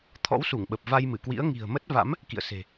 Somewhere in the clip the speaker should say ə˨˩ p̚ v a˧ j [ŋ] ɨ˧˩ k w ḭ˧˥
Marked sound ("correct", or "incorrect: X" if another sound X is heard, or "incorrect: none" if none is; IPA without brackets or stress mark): incorrect: m